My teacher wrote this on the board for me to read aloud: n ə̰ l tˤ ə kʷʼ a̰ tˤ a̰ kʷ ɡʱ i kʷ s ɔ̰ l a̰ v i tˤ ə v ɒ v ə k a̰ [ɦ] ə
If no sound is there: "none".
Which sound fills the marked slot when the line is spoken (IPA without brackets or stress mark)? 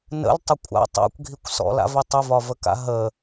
ɦ